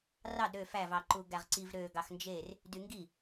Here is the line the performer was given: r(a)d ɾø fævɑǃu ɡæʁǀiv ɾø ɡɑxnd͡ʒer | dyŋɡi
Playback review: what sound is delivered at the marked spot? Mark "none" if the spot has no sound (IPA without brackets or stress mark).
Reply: ɑ